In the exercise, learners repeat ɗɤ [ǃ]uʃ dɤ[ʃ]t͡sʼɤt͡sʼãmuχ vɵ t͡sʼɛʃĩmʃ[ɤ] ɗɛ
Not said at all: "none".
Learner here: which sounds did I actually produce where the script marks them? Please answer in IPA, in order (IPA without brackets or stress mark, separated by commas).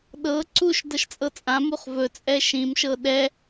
ǀ, ʃ, ɤ